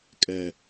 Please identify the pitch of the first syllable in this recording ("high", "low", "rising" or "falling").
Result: low